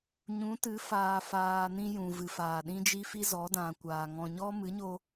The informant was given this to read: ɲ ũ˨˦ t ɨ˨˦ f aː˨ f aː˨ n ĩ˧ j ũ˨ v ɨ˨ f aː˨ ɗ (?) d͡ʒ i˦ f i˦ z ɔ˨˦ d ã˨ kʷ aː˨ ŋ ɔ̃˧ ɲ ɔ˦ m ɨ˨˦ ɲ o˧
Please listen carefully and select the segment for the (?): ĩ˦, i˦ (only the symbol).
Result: ĩ˦